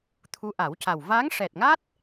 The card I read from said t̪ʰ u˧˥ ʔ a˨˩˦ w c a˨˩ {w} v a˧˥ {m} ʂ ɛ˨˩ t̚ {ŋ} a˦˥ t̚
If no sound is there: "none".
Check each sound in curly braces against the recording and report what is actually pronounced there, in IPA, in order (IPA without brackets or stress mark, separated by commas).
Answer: w, ŋ, ŋ